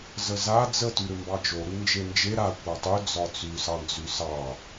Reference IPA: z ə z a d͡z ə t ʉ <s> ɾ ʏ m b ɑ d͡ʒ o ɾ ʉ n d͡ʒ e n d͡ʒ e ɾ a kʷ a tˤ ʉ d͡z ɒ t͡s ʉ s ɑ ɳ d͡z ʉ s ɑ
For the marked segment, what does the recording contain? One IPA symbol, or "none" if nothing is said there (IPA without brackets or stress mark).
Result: none